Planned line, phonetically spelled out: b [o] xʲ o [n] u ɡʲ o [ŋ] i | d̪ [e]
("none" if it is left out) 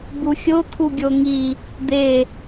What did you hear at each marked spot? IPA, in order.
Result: u, t̪ʰ, ŋ, e

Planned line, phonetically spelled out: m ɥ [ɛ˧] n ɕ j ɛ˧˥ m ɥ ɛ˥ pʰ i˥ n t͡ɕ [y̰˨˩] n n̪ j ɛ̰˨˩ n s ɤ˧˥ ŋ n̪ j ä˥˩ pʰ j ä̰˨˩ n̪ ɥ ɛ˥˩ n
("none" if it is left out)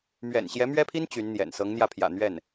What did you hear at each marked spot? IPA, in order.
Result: ɛ̰˨˩, y˧˥

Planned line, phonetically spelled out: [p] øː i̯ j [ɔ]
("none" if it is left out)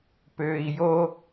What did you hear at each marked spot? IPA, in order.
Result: p, o

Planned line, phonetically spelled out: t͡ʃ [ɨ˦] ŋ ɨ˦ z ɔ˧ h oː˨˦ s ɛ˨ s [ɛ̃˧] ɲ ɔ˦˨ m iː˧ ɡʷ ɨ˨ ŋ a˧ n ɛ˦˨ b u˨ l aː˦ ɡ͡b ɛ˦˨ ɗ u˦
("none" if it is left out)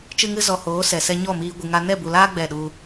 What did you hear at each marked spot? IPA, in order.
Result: ɨ˦, ɛ˧

